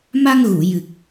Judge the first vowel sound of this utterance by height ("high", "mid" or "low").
low